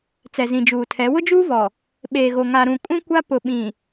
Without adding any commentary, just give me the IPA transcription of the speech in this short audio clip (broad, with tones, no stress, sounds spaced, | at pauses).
t͡s ɛ˨ z ĩ˨ d͡ʒ uː˨ tʰ ɛ˨˦ w ʊ˦ d͡ʒ uː˦ v ɔ˨ | ɓ eː˨ ɣ o˨ ŋ a˨ ɾ ũ˨ kʼ ũ˦ kʷ a˦ p ʊ˨ ɓ ĩ˨